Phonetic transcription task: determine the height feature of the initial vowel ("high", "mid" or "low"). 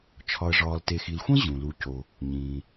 low